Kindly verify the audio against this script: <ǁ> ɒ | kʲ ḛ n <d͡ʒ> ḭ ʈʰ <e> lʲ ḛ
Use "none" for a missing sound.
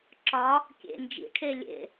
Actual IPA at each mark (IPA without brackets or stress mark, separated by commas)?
ǁ, d͡ʒ, e